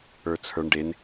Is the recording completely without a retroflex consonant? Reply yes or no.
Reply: no